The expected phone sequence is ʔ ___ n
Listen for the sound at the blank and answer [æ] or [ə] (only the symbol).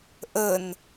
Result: ə